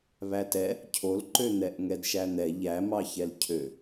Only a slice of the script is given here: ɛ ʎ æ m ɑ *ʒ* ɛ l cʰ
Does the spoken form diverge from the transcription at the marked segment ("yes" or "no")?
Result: yes